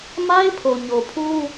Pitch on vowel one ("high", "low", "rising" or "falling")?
high